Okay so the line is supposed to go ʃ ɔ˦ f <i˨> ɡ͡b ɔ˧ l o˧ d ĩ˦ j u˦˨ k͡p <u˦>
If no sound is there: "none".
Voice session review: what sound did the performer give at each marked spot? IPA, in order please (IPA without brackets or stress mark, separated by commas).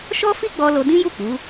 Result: i˦, u˨˦